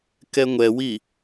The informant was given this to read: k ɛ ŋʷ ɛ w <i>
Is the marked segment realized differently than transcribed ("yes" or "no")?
no